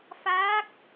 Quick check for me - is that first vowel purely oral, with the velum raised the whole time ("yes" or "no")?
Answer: yes